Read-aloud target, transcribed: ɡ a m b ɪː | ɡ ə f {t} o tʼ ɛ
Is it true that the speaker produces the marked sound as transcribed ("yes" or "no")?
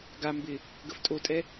no